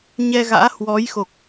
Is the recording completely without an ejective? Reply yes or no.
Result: yes